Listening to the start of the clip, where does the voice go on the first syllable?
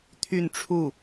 falling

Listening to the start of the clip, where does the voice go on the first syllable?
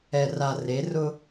low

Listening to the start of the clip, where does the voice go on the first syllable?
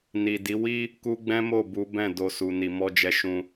low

